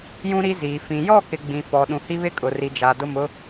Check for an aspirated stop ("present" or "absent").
absent